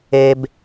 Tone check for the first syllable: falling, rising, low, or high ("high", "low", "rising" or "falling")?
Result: high